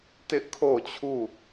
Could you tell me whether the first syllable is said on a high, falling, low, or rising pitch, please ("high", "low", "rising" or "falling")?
high